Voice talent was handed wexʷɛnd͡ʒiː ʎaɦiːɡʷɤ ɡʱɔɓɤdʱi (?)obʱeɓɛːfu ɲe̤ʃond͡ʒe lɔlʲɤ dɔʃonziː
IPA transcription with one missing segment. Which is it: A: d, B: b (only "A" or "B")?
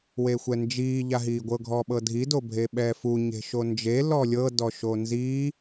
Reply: A